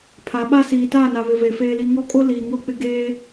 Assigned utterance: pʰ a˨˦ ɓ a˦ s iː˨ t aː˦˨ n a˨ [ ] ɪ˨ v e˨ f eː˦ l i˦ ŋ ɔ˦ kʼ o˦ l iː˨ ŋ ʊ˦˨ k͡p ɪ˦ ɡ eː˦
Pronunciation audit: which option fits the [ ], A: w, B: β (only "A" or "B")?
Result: B